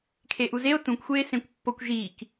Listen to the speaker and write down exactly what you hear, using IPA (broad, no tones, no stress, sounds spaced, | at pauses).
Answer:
kʰ e ʔ u z e o̯ t ũ kʷ xʷ eː s ẽ kʷ pː o kʷ ʒ iː k